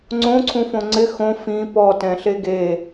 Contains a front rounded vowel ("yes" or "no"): no